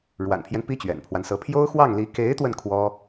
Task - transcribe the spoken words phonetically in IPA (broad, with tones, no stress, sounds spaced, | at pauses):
ɻ w a̰˨˩ n pʰ j ɛ˦ n p i˥ t͡ɕ ɥ ɛ̰˨˩ n pʰ w a˦ n s ɤ˧˥ pʰ j o˥ ʊ̯ x w ɑ˥˩ ŋ l i˧˥ k e˧˥ ɪ̯ t̪ w ə˧ n kʰ w ɔ˥